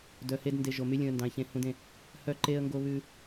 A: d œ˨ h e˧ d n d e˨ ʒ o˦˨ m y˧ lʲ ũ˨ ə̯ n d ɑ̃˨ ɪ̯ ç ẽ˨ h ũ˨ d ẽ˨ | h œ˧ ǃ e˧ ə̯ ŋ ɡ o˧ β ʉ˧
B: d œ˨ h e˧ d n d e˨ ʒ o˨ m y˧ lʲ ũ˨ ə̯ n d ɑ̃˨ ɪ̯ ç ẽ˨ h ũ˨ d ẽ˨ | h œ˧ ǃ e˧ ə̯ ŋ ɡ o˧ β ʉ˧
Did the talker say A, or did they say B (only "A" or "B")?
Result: B